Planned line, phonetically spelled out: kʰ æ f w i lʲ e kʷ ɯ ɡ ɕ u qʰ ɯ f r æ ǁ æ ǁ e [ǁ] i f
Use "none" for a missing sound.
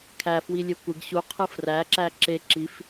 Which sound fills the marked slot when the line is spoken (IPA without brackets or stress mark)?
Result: ǁ